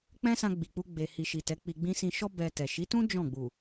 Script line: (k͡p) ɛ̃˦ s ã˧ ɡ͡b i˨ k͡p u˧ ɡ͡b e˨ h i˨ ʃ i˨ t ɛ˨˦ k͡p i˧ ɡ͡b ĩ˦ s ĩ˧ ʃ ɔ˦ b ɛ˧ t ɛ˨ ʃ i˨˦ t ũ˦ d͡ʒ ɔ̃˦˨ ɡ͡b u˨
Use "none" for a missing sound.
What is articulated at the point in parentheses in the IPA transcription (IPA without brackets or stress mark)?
k͡p